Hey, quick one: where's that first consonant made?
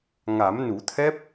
velum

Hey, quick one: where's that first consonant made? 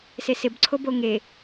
tongue tip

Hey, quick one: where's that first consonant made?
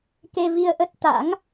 velum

